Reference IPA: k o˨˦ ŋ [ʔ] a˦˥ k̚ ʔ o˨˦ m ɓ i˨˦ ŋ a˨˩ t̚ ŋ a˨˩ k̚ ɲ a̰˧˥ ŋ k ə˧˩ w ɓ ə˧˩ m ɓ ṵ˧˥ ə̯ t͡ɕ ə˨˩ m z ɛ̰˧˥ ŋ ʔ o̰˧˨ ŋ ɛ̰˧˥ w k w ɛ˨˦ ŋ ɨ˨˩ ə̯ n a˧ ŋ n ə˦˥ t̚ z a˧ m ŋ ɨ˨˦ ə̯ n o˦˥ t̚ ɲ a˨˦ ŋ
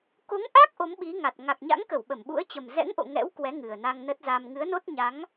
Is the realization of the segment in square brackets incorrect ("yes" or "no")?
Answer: no